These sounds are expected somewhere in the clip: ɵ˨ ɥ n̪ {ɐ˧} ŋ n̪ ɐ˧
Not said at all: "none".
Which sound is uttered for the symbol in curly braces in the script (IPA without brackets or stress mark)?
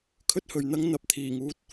ɐ˥